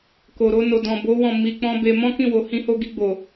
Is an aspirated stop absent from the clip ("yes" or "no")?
yes